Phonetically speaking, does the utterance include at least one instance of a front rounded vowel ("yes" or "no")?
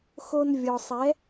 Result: no